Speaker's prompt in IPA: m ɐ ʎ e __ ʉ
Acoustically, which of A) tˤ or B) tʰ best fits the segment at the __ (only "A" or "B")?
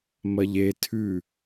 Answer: B